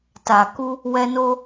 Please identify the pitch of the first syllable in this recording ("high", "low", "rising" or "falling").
low